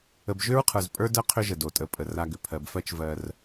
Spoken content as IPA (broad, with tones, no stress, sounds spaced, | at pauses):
ə˨ b ʒ ʏ˦ ɹ qʰ ə˞˨ z pʼ ə˞˦ d ɜ˦ qʰ ʏ˦ ʒ ə˨ d o˨ tʼ ə˨ pʼ ə˨ r a˦ ɡ ʏ˨ pʰ ɜ˨ b f ɜ˦ t͡ʃ v ɜ˦ r